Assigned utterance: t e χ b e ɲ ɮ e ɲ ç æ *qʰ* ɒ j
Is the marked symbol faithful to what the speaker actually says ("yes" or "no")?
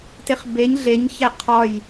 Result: yes